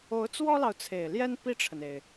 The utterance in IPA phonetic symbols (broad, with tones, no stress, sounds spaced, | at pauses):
o˧˥ ʊ̯ t͡s w ɔ˥ l ɑ˨ ʊ̯ t͡sʰ e˨˩ ɪ̯ l j ɛ˥ n p i˥˩ ʈ͡ʂʰ ə˩ n e˩ ɪ̯